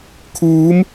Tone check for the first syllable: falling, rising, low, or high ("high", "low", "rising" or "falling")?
rising